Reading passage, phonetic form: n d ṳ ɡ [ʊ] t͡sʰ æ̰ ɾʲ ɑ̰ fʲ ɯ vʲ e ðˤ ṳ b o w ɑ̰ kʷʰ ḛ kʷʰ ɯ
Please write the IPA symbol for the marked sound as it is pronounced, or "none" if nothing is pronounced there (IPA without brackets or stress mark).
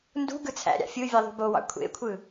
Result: ɯ